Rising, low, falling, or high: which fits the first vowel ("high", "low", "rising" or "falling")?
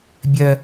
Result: high